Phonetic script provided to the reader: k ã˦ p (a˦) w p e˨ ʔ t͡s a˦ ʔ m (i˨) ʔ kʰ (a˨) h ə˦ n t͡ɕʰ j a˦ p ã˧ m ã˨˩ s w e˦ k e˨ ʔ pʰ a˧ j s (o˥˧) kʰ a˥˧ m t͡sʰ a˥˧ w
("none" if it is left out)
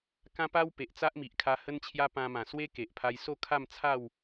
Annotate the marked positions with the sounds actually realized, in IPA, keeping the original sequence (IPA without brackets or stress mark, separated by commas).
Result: a˦, i˨, a˧, o˥˧